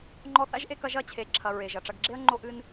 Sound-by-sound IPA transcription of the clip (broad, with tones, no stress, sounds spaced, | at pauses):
ŋ͡ǃ ɔ˦ θ a̰˥ ʒ ʔ e˦ k ɐ˦ ʒ ɐ˥ t͡ɕʰ e˨ ǁʰ ɐ˨ ɹ e˩ ʒ ɐ˩ ʈ͡ʂ ɐ˨ ɡ ɡ͡ǁ e˦ ɐ̯ ŋ͡ǃ o˦ ʔ ɨ˦ n